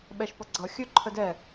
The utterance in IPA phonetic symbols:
ɓ ɛ ʃ p ʌ ɡ͡ǀ ʌ xʲ ɵ ǃʰ ə d ɛ

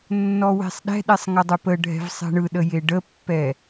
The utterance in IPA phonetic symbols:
nː ɔ w e̤ sˤ ɗ ɛ̤ ɗ e sˤ ŋ ə dˤ ɯ p ə ɖʱ ɛ̤ v sˤ ɛ̤ ɳ ɯ ɗ ə j e ɖ ə pː ɛ

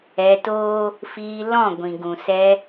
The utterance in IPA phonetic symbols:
ɛ˧ t oː˦ | f iː˧ l ɔ̃˦˨ ɡʷ ĩ˨ ɡ ũ˨ s ɛ˧

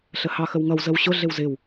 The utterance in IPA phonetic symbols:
ɬ ə h ɑ x ə w ŋ ʌ w z ə w ɕ ʊ ɮ ɪ w z ɪ w

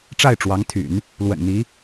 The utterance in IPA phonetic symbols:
ʈ͡ʂ a˥˩ ɪ̯ ʈ͡ʂ w ɑ˧˥ ŋ t̪ʰ y̰˨˩˦ n | l w ə̰˨˩ n n̪ i˧˥

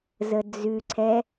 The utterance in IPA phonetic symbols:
z ə d͡z ʉ ǀʰ ɛ

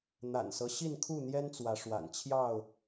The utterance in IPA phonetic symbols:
n̪ a̰˨˩ n s ɤ˦ ɕ i˥˨ n kʰ u˥˨ n̪ j ɛ˦ n t͡s w ä˨˦ ʂ w a̰˨˩ n t͡ɕʰ j ɑ˥˨ ʊ̯

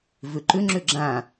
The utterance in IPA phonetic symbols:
v ʏ ǃ ʏ ŋ͡ǁ ʏ ɡ͡ǁ ã

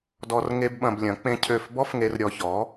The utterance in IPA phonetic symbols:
d ɔ˦ r ŋ e˦ b ɓ ɐ̃˧ b lʲ ɐ̃˨˦ k͡p ẽ˦ cʰ ø˦˨ f b ɔ˦ f ŋ e˧ r ɾʲ ɔ˧ ç ɔ˨˦

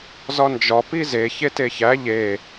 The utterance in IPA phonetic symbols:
z ɒ n d͡ʒ ɒ p i z e ç e t e ç æ ʎ e

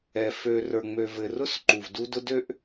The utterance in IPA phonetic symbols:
ɛ˨ f ø˨ r ə˞˨ ŋ͡m ø˨ v ɘ˨ r ʊ˦ s ǃ u˨ v d u˦ d ʊ˦ d ø˦ ʔ

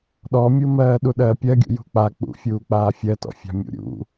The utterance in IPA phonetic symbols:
ɗ ɔ mʲ u m ɜː ɗ u ɗ ɜː pʲ ɜ ɡʲ ṵ j ṳ k͡p a k͡p ṵ fʲ uː k͡p aː fʲ ɜ t ɔ̰ fʲ a̤ mʲ ṵ ɾʲ ṵ

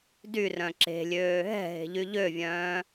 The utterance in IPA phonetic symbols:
d y r œ̃ ǁ e̤ lʲ øː ɦ ɛ̤ ɦ e̤ ʎ y ʎ ø vʲ œ̃ː

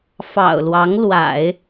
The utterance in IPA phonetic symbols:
f ɑ̰˨˩ ʊ̯ l w ɑ˧˥ ŋ l w a̰˨˩˦ ɪ̯

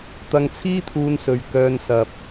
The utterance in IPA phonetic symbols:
t̪ ɐ˧ ŋ t͡sʰ iː˥ t̪ʰ uː˧ n s ɵ˨ ɥ k œː˧ n s ɐ˨ p̚

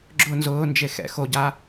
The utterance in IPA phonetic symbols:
ɡ͡ǁ ʊ n z ʊː n d͡ʒ e x ɛ̰ x o ɟ a

